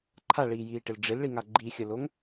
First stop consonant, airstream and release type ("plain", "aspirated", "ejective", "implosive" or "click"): click